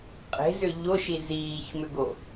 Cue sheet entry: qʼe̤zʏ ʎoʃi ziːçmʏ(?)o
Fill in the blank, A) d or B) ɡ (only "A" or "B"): B